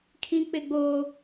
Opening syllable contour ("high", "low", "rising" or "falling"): high